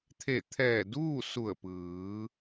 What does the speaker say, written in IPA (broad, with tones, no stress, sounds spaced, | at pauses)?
t̪ʰ e˧˩ t̪ʰ ɛː˧˩ d uː˥˨ s u˧˩ ə̯ p ɯː˩˧